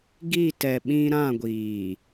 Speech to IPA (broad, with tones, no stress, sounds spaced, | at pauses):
ɡ i˦˨ t ɛ˨ ɓ ĩ˦ ɾ ã˦˨ ɡʷ iː˨